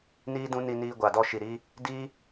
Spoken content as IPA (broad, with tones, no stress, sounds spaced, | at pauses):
n iː˦ d ũ˦ n i˧ n iː˧ ɡʷ a˨ d ɔ˧ ʃ i˨ ɾ i˦ | d i˦